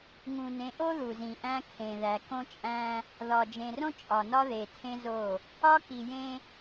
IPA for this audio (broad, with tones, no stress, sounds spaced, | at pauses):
ŋ ũ˨ n ẽ˨˦ ʔ o˦ ð u˨ z ĩ˨ ʔ æ̃˦ kʰ ẽ˨ ð æ˨ k õ˦ t͡ʃʼ æ̃˦ | ð ɒ˨ d͡ʒ ẽ˨ r õ˦ t͡ʃʼ ɒ˨ n ɒ˦ ð e˨ tʰ ẽ˦ z o˦˨ | ɒ˦ k i˨ j ẽ˦